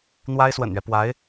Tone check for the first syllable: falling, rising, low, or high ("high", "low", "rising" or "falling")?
high